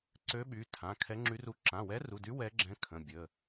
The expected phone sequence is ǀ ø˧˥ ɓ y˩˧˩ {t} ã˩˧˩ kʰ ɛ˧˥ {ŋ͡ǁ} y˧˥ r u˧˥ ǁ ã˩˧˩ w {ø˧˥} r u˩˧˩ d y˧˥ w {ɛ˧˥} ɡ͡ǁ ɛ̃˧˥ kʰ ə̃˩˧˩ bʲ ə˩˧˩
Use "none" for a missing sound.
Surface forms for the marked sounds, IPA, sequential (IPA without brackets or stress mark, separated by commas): tʰ, ŋ͡ǁ, ɛ˧˥, ɛ˧˥